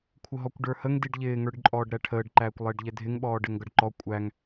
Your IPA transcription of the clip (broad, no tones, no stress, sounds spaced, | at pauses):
kʷʰ ə ɦ ɔ kʷ ɖ ə˞ h ə ŋ d i ɖ ʎ ɪː ŋ ə˞ ɖ ǃʼ ɔː ɖ ɾ æ ʈʰ əː ɖ ǃ æː kʷ lˠ ɪː ɖ ʎ ɛ dʱ ɪ ŋ ɓ ɔː ɖ ɛ ŋ ɡ ʌ ɖ ǃ ɔ kʷʼ æ ŋ